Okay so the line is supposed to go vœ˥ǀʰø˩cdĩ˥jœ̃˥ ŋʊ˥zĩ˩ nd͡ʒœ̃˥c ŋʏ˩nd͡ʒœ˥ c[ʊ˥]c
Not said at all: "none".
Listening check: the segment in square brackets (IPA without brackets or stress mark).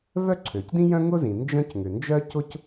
ʊ˥